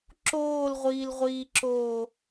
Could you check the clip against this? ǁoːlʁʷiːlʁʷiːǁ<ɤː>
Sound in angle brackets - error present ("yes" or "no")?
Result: yes